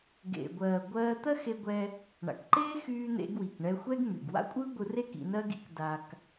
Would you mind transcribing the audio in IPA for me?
ɡḛ˩ɡʷɜː˩ ɡʷɜː˧ t̪ɜ˥xe˧ɡʷɛ˧ | ɳa̰˩kǃeː˥ xyː˧n̪ḛ˧ɡ wi˩kɳɛ˧xʷɛ˥ɡmy˩ɡ wa̰˥kʷʼɯː˥ɡʷɯ˧re˥k ḭ˧nɜ˥ɡḭ˧k da˧k

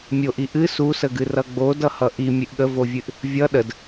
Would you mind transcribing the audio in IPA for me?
mʲoʔiʔɨ susəɡɨ rʌɡ͡bo dʌhʌʔi mʲɨʔɠəvovʲɨʔ | vʲʌ ɗəd

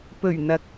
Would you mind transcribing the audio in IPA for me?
pɵ˨˩ɥn̪ɐ˨˥k̚

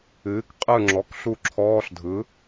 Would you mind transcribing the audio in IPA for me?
ɨː˩˥kqʼɯ˦˨ ŋ͡ǁɔ˩˥kɬu˦˨ ǁʰɔː˧˥˧ɬdʱɯ˩˥

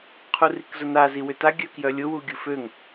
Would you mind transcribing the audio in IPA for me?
qʰurikzʊna ziwʏta ɡʲœkjœlʲʊ wuɡʲʊføŋ

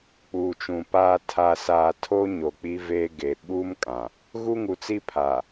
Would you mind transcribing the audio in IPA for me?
k͡puː˨t͡ʃũ˨ paː˨tʰa˨saː˨ tʰo˦ɲo˨ k͡pi˦veː˦ ɡe˨ɓuː˦mkʼã˨ | ɣu˦ŋu˨t͡si˦ pʰa˨

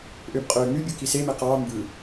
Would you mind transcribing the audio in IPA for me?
ʔøbqʼøːŋ͡my bʲukise meqɑː mbɯ

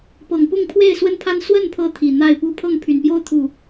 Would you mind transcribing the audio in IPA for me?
pɤ˨˩ŋpʊ˥˨ŋpʰwe˥˨ɪ̯ swə˦npʰa˦n swə˥˨n pʰɤ˥˨t̪ʰi˨˩ n̪a˥˨ɪ̯pu˥˨ pʰɤ˥˨ŋpʰy˨˩npjo˥˨ʊ̯ t̪ʰu˨˩

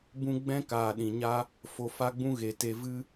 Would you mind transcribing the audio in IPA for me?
bũ˦ ɡ͡bɛ̃˦kaː˨ ɗĩ˨ ɲa˧ | fo˧fa˦ɡ͡bũ˦ ɣe˨te˧ vɨ˦

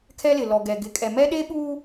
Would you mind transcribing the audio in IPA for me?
kʰɛ˦lɪ˨ lɔ˨ɡɛ˨ ɡɪ˨kʼɛ˨mɛ˦ɗeː˦ ɓuː˦

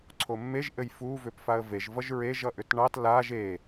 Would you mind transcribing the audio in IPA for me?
ǀʰomːeʒ ʔɘjfu vʏpfaə̯veʒ vʌʒɹeʒ ʌʔʏtɳɑt laʒ e

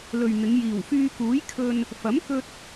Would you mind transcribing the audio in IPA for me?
lɵ˨ɥn̪ɪ˨˧ŋ jiː˨˩wfyː˧kuː˨˥jkʰɵ˧n | fɐ˨˥mkɵ˧t̚

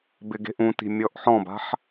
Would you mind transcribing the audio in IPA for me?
bɪɡe̤ʔũti̤ mʲɔʔħɔ̃ba̤ħ

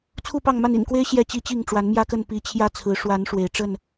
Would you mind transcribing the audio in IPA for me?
t͡sʰu˥˨pɑ˥˨ŋma˥˨n ḭ˨˩nkwe˦ɪ̯ ɕjɛ˥˨t͡ɕi˦t͡ɕi˥˨ŋ ʈ͡ʂwa˨˦nmjä˦kə˥˨n pi˨˦t͡ɕʰjä˦t͡sʰɹ̩˨˦ ʂwa˨˦n ʂwe˨˦ɪ̯ʈ͡ʂə˥˨n

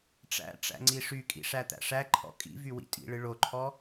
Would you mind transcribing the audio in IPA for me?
ʈ͡ʂæ̰ ʈ͡ʂæ̰ŋ͡ǀiʂykʼḭ ʂæt̪æ̰ʂæǃʰɔ̰ kʼḭvy wḭtʼḭɭɨ ɭoǃʰɔ

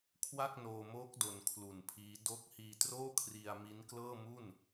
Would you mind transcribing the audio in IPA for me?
kʰwa˥˩k̚noː˧moː˦˥k̚ do˧nkʰlu˨˩npʰiː˦˥ do˦˥k̚hiː˧troː˥˩ kʰri˧a̯mi˦˥nklɤː˥˩ mu˥˩n

